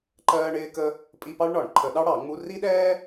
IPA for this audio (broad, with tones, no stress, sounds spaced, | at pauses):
ǃ ɜː˥ ɳ ɪː˥ k ə˥ | pʼ i˧˥˧ p ɑ˥ ɭ ɳ ɒ˧˩˧ ɳ ǃʰ ə˧˩˧ ɗ ɑ˥ ɽ ɑ˧˩˧ ŋ͡m u˧˥˧ r i˥ ɗ ɛː˥